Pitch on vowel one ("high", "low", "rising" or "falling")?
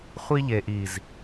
high